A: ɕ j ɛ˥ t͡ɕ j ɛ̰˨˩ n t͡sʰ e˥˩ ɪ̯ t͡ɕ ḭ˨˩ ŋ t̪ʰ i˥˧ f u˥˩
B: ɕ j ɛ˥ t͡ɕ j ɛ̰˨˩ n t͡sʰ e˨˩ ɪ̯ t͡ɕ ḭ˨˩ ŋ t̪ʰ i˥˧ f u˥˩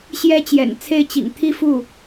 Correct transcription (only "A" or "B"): A